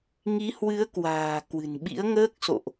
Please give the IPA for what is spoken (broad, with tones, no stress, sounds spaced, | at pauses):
ŋ i˨˦ h w ɨ˨˦ ə̯ k w a̤ː˨˩ k w ɨ̤˨˩ n ɓ ḭ˧˥ ə̯ ŋ əː˦˥ k̚ s o̰˧˨ ʔ